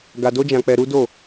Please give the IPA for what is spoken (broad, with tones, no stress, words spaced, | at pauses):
ɡa˧do˦d͡ʒã˧k͡pɛ˧ ɾu˦do˦˨